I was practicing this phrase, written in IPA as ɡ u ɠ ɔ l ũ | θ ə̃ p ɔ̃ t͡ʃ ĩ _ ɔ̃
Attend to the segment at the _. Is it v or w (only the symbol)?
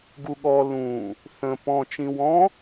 w